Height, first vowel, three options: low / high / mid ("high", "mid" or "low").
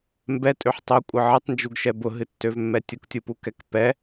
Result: mid